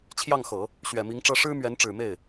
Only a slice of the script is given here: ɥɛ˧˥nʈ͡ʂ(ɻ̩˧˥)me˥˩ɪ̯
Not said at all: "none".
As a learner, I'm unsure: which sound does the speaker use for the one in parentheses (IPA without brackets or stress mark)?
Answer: ɻ̩˨˩